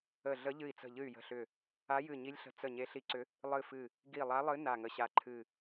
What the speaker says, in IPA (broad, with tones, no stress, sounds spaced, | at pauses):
ə˧˩ ɮ ə˧˥ ʎ ɨ˧˩ i̯ t͡s ə̤˧˩ ʎ ɨ˧˩ y̯ j ə̤˧˩ ɬ ʏ˧˩ | a˧˥ j ɨ˧˩ ɲ i˧˥ lʲ ɬ ə̤˧˩ t͡s ə˧˩ ɲ e˧˥ ɬ i˧˥ ǀ ʏ˧˥ | lˠ ɨ˧˩ f ɨ˧˩ | ɡ i˧˩ lˠ a˧˥ lˠ ɨ˧˥ n a˧˩ ŋ ə˧˩ ɕ a˧˥ ǃʰ ɨ˧˩